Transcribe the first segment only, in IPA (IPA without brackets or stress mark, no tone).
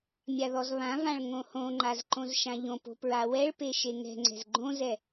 mʲ